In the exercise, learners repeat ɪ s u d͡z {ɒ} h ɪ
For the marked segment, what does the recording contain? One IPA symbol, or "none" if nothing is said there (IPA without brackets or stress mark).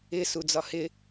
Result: ɒ